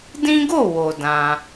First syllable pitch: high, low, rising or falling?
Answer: high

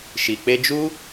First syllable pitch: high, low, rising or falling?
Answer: low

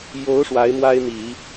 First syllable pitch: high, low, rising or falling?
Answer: rising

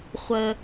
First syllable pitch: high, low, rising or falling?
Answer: low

